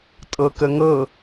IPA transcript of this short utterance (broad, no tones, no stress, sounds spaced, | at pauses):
tʼ ɤ k ə ŋ ɤ